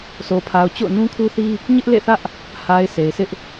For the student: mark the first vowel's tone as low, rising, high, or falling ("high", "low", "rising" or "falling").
low